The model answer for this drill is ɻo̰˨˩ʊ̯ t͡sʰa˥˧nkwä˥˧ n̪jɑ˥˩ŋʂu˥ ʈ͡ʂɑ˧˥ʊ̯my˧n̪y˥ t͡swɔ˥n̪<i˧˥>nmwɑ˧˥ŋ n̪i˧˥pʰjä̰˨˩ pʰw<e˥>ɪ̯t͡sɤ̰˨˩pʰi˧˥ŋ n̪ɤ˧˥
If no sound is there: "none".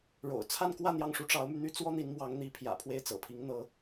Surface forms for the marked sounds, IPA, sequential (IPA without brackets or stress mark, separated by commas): i˧˥, e˥˩